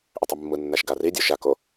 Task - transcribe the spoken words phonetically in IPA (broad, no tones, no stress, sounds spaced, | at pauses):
ʔ ʏ tˤ o mː ɯ nː a ʃ ɡ a r i dʲ ɔ ʃ a k o